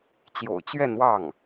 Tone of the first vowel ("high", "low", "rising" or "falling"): low